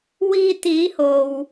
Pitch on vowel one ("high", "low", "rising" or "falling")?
low